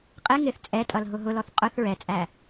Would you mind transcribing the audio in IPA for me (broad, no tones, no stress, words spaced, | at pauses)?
qʼɪ ŋɪθ t͡sʼɛtʼʌl ɦʊɦʊlɔθ qʼʊθ ɹɛt͡sʼæ